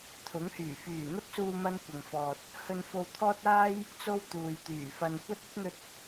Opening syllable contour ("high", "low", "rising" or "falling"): rising